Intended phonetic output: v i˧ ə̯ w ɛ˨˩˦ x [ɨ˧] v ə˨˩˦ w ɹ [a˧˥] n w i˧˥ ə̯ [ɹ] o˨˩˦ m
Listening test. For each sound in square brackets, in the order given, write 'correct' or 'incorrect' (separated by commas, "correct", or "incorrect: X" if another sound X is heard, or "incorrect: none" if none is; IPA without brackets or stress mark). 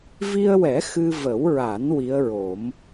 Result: correct, incorrect: a˨˩˦, correct